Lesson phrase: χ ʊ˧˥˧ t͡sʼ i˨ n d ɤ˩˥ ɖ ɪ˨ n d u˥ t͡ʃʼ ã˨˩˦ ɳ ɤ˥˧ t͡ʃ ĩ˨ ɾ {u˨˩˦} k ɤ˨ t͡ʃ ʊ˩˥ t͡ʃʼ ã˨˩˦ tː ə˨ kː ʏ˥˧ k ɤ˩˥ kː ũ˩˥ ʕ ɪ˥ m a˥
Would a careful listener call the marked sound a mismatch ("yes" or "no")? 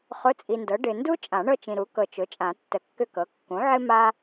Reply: yes